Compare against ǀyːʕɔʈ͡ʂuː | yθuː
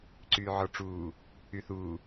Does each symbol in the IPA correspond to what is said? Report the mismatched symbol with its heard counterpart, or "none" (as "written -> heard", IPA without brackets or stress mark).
none